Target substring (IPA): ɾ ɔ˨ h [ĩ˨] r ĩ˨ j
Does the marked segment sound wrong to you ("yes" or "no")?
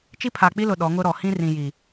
yes